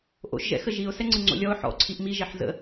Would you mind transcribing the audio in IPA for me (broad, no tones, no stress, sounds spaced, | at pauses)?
ʔ o̰ ʃ ʒ ɛ̰ x ə ʒ i ʊ̯ s ɛ ŋ͡ǀ ɯ ŋ͡ǀ o̰ lʲ ɔ ʊ̯ ħ ɔ̰ ǀʰ i ʔ m i ʒ ɛ ħ z ə̰